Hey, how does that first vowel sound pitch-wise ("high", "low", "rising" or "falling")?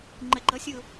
low